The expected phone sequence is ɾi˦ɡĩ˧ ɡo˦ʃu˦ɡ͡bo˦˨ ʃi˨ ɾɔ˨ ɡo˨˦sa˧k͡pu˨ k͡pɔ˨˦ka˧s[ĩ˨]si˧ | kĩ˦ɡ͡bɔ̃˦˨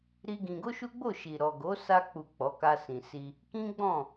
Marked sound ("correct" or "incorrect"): correct